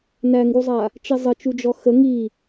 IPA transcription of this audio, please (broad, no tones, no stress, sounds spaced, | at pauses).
n æ ŋ ɡ u zˤ a | t͡ʃ e zˤ ə t͡ʃ u d͡ʒ ɔ x ə ŋ i